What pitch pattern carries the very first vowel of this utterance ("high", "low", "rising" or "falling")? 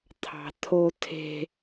low